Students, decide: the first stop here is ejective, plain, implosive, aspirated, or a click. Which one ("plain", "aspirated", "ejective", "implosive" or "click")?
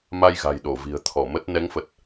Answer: implosive